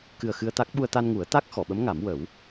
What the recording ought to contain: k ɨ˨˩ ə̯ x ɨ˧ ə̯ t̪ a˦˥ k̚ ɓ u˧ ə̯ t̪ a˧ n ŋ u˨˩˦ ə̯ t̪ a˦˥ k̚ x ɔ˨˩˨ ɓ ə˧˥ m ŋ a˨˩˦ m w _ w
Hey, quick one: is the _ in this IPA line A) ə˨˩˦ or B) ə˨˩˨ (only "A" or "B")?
A